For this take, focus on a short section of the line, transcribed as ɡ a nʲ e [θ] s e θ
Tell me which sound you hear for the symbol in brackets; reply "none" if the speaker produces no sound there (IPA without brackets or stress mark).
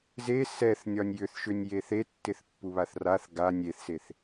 θ